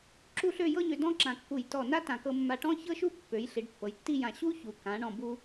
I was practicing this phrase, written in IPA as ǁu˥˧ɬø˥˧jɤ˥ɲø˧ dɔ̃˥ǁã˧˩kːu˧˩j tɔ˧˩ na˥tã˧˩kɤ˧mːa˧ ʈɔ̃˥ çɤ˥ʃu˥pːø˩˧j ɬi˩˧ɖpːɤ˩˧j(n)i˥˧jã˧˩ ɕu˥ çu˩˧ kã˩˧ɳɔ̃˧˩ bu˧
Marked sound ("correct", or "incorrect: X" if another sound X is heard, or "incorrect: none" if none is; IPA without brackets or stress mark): incorrect: tː